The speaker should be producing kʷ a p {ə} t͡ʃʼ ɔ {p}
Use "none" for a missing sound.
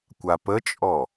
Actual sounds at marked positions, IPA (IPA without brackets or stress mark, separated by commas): ə, none